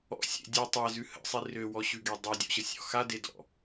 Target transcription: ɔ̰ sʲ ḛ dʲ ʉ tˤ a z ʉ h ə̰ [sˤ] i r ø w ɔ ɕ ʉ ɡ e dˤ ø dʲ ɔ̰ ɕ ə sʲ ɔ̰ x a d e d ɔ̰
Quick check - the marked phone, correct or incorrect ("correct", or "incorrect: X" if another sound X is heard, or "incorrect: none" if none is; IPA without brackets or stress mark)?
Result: correct